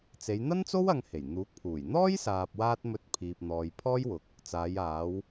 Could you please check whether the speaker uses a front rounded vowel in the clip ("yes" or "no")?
no